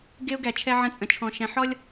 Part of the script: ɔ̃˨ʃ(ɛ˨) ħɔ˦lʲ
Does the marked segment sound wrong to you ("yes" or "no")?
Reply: yes